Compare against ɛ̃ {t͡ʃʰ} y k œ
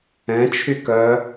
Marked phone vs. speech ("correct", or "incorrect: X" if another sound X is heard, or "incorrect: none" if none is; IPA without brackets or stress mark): correct